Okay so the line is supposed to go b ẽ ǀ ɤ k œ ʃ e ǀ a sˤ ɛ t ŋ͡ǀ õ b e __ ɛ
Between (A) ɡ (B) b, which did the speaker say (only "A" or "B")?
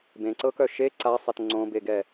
A